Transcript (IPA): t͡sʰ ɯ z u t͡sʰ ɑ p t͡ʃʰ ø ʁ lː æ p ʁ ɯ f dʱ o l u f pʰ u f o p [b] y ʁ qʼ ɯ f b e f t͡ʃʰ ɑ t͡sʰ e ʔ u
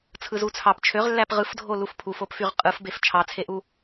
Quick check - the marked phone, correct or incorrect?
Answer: incorrect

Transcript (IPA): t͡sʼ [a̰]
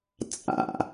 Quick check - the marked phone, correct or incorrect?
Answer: correct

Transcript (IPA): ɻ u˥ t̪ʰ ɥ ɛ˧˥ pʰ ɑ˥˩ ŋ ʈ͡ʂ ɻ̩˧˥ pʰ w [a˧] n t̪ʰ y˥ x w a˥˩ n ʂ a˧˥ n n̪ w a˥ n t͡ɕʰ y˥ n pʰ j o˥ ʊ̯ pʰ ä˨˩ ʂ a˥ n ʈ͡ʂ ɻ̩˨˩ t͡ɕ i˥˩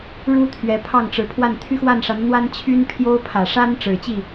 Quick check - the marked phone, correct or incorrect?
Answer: incorrect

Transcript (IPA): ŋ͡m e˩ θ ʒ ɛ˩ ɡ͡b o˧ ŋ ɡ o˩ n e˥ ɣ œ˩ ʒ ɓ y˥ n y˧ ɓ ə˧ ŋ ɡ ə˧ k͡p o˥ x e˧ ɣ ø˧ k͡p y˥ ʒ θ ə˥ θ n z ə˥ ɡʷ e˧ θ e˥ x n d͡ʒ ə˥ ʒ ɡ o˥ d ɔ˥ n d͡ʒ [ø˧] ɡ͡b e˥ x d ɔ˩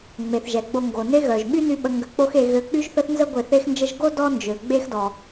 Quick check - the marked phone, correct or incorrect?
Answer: incorrect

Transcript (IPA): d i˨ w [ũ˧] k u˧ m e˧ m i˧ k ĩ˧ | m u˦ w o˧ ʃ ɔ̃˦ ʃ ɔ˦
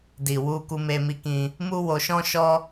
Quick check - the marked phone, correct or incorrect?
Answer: incorrect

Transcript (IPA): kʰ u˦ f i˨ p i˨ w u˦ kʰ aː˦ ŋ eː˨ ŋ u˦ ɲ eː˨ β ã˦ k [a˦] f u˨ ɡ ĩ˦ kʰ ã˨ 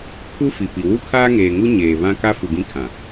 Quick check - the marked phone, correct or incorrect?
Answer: correct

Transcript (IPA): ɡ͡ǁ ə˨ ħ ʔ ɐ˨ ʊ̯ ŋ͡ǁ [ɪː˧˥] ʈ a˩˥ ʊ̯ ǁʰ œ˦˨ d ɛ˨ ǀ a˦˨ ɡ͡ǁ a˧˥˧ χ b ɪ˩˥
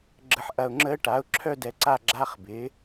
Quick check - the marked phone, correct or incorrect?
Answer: incorrect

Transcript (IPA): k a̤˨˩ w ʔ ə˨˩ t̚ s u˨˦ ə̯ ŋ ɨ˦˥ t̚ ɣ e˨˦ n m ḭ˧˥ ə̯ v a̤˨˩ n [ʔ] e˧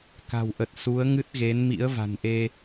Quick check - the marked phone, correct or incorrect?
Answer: correct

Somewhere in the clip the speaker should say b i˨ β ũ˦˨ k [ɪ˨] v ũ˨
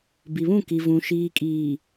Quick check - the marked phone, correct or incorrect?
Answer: incorrect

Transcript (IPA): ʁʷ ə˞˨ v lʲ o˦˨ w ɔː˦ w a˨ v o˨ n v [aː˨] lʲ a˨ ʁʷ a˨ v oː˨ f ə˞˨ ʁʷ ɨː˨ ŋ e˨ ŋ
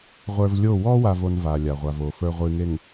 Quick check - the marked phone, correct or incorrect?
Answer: correct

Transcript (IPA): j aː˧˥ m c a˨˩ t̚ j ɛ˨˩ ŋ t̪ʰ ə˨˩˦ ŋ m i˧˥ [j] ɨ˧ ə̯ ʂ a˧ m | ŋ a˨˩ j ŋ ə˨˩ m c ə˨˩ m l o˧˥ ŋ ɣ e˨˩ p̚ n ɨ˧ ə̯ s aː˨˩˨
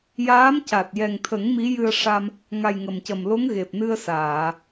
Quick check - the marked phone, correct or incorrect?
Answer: correct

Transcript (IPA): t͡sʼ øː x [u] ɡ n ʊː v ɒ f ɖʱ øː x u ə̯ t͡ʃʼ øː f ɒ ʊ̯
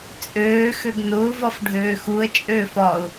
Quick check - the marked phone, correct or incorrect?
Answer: incorrect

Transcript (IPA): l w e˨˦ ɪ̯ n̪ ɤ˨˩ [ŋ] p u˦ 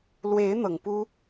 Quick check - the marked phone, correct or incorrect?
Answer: correct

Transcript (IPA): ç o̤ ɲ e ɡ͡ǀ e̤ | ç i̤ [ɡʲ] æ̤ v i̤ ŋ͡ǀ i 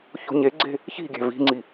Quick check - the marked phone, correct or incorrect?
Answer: correct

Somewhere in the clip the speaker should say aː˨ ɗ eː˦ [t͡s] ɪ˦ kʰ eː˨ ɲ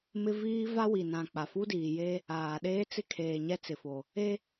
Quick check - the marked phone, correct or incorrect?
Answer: correct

